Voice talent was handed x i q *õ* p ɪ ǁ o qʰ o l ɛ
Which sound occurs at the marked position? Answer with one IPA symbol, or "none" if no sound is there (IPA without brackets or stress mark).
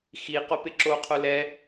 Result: o